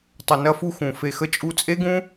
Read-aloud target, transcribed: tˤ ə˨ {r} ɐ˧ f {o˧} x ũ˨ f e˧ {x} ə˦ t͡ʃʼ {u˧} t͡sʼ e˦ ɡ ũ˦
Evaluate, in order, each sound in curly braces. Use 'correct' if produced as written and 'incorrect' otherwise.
incorrect: n, incorrect: u˧, correct, correct

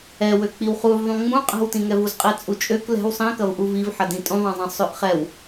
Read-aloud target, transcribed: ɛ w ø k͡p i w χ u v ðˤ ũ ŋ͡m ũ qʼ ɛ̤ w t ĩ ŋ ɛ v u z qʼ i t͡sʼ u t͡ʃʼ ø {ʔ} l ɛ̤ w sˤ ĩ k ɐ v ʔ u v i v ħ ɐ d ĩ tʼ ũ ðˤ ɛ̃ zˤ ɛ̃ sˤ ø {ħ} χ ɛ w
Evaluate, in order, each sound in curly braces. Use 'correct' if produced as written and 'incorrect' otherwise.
incorrect: k, incorrect: ʔ

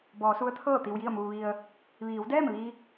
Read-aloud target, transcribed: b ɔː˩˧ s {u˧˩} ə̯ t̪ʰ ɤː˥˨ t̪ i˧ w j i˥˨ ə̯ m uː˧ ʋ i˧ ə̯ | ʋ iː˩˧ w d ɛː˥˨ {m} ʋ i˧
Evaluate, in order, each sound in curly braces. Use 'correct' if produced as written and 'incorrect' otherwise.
incorrect: u˧˥, correct

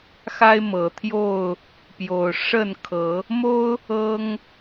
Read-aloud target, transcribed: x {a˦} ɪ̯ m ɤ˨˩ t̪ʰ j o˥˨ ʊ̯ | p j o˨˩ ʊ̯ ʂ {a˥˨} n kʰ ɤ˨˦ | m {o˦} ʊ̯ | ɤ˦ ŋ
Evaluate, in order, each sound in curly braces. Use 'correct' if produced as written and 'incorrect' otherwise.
correct, incorrect: ə˥˨, correct

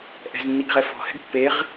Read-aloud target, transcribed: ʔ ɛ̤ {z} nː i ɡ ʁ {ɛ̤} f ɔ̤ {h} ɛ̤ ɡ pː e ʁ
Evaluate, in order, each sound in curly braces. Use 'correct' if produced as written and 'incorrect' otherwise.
correct, incorrect: ɛ, correct

